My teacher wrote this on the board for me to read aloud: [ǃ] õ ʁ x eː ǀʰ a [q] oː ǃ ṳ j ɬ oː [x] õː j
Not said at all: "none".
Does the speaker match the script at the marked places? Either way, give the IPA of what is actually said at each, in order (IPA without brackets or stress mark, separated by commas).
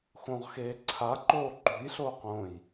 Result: x, ǃ, q